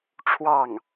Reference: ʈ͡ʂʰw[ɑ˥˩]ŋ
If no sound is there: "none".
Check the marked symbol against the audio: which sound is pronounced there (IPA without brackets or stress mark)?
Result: ɑ˥˩